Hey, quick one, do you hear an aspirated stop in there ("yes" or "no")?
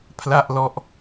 yes